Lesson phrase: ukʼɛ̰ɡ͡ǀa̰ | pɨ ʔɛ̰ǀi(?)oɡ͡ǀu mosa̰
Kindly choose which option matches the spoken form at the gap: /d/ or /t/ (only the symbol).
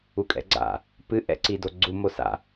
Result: d